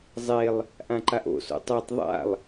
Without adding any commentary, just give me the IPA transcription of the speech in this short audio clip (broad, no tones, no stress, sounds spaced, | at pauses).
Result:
zˤ e lˠ | ʔ ã ǃ a ʔ o̰ s o̰ tˤ ɛ tˤ ðˤ a̰ lˠ